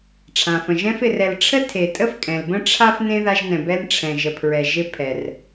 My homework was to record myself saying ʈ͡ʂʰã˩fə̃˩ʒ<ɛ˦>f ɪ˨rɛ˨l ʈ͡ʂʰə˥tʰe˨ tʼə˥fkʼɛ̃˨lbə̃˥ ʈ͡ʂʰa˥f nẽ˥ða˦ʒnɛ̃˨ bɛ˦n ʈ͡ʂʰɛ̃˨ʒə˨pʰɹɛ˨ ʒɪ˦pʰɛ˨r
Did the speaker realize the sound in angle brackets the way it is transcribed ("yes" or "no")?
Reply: no